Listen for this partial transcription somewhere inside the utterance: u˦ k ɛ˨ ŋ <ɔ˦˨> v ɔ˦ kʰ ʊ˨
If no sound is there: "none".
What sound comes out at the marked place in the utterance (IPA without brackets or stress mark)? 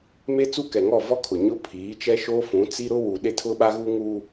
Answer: ɔ˦˨